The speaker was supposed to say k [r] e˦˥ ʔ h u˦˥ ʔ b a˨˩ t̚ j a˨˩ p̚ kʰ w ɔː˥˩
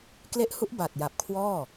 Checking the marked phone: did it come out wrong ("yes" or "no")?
yes